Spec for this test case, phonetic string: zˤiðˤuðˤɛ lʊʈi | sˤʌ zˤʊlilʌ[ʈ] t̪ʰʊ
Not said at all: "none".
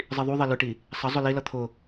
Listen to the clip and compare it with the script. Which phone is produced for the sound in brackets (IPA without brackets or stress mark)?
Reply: none